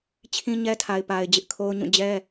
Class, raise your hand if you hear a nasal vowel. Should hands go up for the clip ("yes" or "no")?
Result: yes